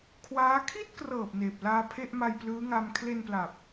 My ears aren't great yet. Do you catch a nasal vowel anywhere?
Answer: no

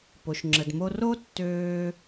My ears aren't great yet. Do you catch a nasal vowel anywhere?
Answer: no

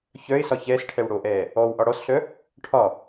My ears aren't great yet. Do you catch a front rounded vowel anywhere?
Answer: yes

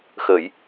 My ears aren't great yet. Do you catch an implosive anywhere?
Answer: no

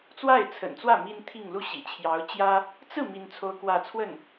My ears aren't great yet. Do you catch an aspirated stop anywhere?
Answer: yes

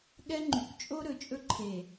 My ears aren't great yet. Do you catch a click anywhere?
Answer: yes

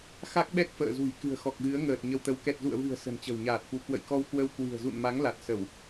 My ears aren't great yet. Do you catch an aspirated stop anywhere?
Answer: no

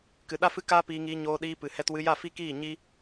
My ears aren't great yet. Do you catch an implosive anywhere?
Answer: yes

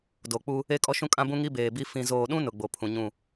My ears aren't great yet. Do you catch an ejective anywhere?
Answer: yes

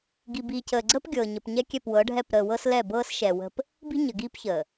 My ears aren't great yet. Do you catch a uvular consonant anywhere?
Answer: no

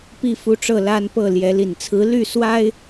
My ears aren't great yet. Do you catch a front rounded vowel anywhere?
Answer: yes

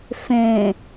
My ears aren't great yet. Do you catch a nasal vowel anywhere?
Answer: yes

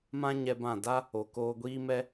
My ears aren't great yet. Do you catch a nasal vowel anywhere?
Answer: yes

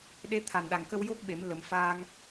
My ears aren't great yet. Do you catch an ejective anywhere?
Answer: no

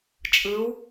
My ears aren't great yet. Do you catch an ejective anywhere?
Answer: yes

